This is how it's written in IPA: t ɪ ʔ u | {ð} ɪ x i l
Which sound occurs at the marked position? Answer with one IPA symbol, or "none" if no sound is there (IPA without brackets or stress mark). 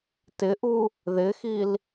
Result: ð